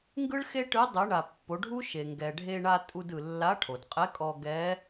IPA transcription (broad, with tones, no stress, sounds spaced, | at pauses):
ŋ ɡ ɯ˥ ɭ x e˥ ʈ ɯ˧˥ dˤ ɯ˩˧ ɳ a˩ pː o˩˧ ɖʱ u˥ ʃ e˩ ŋ ɡ ɛ˩ ɖʱ e˧ ɳ a˧ tʼ u˧ d ɯ˩ lː a˧˥ ʈʰ o˩ d qʼ ɛ˧˥ kʼ ɔ˧ ɡ ɛ˧˥